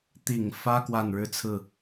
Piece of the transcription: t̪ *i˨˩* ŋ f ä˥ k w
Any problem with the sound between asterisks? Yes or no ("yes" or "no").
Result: no